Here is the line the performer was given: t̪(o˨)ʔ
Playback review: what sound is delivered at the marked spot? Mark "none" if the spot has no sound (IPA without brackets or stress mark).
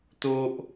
o˦